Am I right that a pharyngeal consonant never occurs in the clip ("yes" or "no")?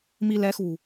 yes